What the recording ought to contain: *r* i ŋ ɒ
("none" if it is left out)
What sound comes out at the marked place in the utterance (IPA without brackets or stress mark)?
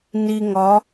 n